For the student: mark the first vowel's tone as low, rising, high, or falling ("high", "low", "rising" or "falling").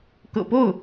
low